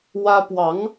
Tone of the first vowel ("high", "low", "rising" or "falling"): high